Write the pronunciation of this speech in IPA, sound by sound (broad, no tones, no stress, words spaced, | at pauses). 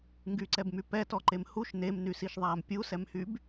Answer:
ŋɡyǀɛbmy pɛtɔǃem huʃ nemnysiʃðˤaːm pʲusɛmhyb